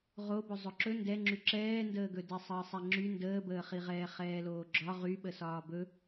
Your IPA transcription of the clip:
ʁobɵ zˤɵǁɵ ndɛŋ͡ǁy ǁɛːndəːɡɵ dɛsˤəːsˤɛŋ͡ǁy ndəːbəːχiʁɛː χɛːloːɡ͡ǁɒ ʁy ɓəsɒːbɵ

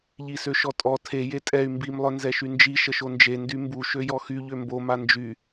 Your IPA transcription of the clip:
ʎisøʃɔtʼɔ tʰe jetʼɛy̯ mbim lˠœnzɛʃynd͡ʒi ʃəʃond͡ʒe ndymbu ʃøjɔxy ʎømbo mand͡ʒy

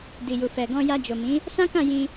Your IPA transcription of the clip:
di˨ju˨fɛ˨ɡɔ̃˧ ja˧d͡ʒo˨mĩ˨˦ | sã˦kã˦˨jĩ˧

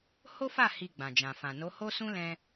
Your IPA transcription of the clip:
ho˦fa˦˨ hi˧ɡ͡bã˨d͡ʒã˨ fã˨no˨˦ho˦sũ˦ lɛ̃˧

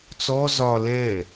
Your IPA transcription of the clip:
t͡sɔ zɒ lɛ̃

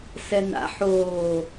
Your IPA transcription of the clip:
sɛna̰ ħoː

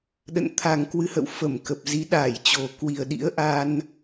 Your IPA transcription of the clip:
ɗə̰˧˨n t̪ʰa˨˩ŋkwɨ˨˦hə̰˧˨w fə˧˩mkə˨˩p̚ zi˨˦ɗaː˧˩jt͡ɕo˨˩ kwi˨˩ə̯ɗḭ˧˥ə̯ ʔa˧n

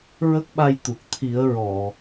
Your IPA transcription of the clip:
ɹə˦˥k̚ɓa˧jt̪u˨˩k̚ t̪ʰi˨˩˦ə̯ɹɔ˨˩˨

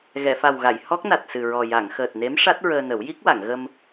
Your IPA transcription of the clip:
ɣɛ˨˩˨fa˨˩wɣa˨˩˨j hɔ˦˥k̚na˨˩t̚sɨ˨˩ɹɔ˨˩ ja˨˩˨ŋxəː˨˩t̚ne˧˥m ʂa˦˥t̚ ɹəː˧nə˨˩˦w ji˦˥k̚wa˨˩˨ŋ ɣə˧m

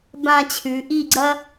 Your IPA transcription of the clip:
bã˥˧t͡ɕʰʉ˨˦ ʔi˥˧ɡ͡ǀɐ˥

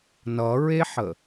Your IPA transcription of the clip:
nʌɹeħə

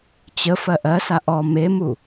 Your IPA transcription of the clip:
t͡ɕə fɜʔɜsa ʔɔ memu

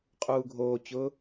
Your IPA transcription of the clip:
qʼuːɡʱoːt͡ɕʊː

